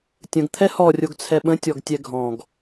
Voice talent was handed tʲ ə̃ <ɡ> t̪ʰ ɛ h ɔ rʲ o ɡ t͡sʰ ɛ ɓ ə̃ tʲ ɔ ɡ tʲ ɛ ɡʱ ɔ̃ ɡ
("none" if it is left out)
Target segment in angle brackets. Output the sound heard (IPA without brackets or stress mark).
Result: ɡ